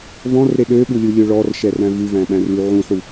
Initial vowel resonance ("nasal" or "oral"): nasal